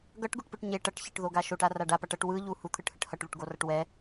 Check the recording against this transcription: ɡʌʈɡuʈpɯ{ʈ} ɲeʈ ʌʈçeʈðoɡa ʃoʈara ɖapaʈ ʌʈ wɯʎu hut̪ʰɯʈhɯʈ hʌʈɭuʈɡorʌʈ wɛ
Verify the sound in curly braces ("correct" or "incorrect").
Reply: correct